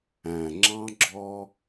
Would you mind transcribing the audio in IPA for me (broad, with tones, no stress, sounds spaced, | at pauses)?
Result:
æ̃˨ ŋ͡ǁ ɑ̃˦ ɡ͡ǁ ɔ˦